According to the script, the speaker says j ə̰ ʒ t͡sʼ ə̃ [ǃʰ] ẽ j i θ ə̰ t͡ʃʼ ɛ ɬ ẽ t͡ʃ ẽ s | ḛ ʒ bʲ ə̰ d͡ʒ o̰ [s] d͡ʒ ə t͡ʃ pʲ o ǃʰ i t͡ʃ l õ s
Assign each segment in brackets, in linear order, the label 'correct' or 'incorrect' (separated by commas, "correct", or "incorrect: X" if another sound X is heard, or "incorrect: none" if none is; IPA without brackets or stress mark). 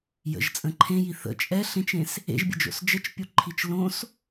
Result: correct, correct